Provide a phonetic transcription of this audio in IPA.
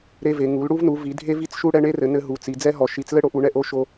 ɾ e˦ v e˨˦ ŋ u˨˦ l ɽ u˦ v n u˨˦ v i˨˦ dʱ e˦ v i˦ t͡s ʃ u˦ ɽ ɛ˦ ɳ e˦ r ɘ˨˦ n ɘ˦ ɦ u˨˦ t͡s i˨˦ d͡z ɛ˦ ɦ ɔ˨˦ ʃ i˨˦ t͡s l ɘ˦ ɽ o˨˦ ʔ u˨˦ ɳ ɛ˦ ʔ o˦ ʃ o˦

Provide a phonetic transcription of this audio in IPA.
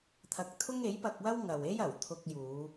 t̪ʰ ɐ˧ k̚ t̪ʰ ʊ˥ ŋ e˨˥ j p ɐ˧ k̚ w ɐ˥ w ŋ ɐ˨ w e˥ j ɐ˨˩ w t̪ʰ ʊ˧ k̚ j uː˨˧

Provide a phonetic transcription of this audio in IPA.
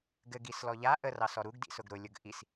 ɡ ɘ ɡ i s l ɔ ʎ a ʔ ə r ɑ s ɔ ɾ u ɡ d ḭ s ʊ ɡ ɾ ʊ lʲ ʊ ɡ ʔ i s

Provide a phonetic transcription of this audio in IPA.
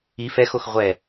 i f ɛ x o x ʁʷ ɛ

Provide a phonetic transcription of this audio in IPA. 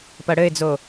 p ɐ ɽ ɘ ɪ̯ d͡z o

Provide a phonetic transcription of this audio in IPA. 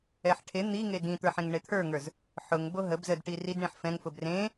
ɛ ħ ʈʰ e n̪ i ŋ e d ĩ t̪ ə˞ ħ ẽ ŋ ɳ e t̪ʰ ə˞ ŋ ə˞ z | ħ ʊ ŋ b o ɦ ə b z ə d ʈ i r i d ɳ ĩ ħ f ɛ̃ ŋ f ʊ b r ẽ

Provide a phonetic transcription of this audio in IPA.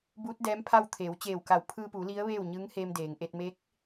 b uː˧˥ t̚ d ɛː˧˥ m pʰ a˥˨ w t̪ʰ eː˩˧ w t͡ɕ eː˧˩ w k a˧˩ w pʰ ɯː˧ p uː˩˧ l i˧˥ ə̯ ʋ eː˥˨ w ɲ ɯː˧˥ ŋ h eː˧ m d eː˩ ŋ ʔ e˧ t̚ m e˧˥ k̚

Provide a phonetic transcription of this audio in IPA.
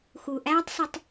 x u˩ ʔ æː˥ tˤ s ɪ˧ tˤ

